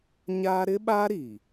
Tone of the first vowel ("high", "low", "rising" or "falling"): high